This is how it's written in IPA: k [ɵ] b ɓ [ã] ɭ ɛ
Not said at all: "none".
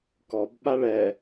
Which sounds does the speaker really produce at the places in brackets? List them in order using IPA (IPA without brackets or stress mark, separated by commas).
ɔ, a